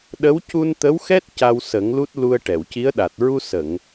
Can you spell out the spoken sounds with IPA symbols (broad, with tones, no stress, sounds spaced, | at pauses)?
ɗ ə˧˥ w c u˧ n t̪ ə˧˥ w x ɛ˦˥ t̚ c a˧ w s ə˨˩˦ ŋ l u˦˥ t̚ l u˧ ə̯ ʈ ɛ˨˩˨ w c i˧˥ ə̯ ɗ a˨˩ t̚ ɹ u˧ s ə˨˩˨ ŋ